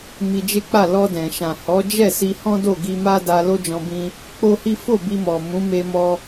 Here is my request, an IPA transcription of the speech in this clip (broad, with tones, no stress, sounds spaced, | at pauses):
m i˧ d͡ʒ e˦ k͡p a˦˨ l ɔ˧ d ɛ̃˨ ʃ ã˨ h ɔ˨˦ d͡ʒ ɛ˦˨ s i˧ h ɔ̃˦ d o˦˨ ɡ i˧ m a˦ d a˧ l o˦ d͡ʒ ɔ̃˧ b ĩ˧ | k͡p o˦ h i˦ f o˦˨ b i˧ m ɔ˨ m ũ˨˦ m e˧ m ɔ˧